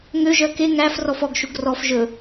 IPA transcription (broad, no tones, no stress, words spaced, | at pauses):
ŋøʒœ ke ŋæf rɔfɔɡʃuɡ rɔf ʒɵ